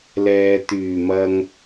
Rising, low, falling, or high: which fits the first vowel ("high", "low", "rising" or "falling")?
low